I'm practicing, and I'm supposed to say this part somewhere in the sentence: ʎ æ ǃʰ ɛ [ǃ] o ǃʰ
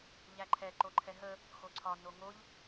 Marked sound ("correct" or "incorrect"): correct